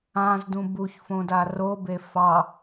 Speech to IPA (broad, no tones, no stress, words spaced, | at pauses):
ãzdũ buçfõda robe fɑ